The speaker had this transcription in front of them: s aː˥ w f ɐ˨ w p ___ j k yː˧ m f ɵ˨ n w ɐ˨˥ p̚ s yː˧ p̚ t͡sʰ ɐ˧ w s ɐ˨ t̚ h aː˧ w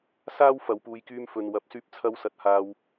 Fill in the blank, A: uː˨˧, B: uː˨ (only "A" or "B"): A